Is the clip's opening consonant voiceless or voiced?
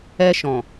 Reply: voiceless